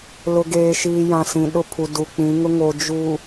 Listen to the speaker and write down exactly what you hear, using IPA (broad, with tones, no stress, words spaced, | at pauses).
lʊ˨ɡeː˨ʃiː˨jã˨ sĩ˨ɗʊ˦pʰu˨ du˨k͡pĩ˨˦ ŋʊ˦ŋoː˨ d͡ʒu˨